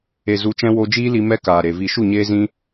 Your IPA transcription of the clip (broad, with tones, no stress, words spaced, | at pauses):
e˨zu˨˦t͡ʃɛ̃˧ wo˧d͡ʒiː˦li˧ mɛ˦kaː˨ɾe˨ vi˨ʃu˦˨ɲeː˧ zĩ˦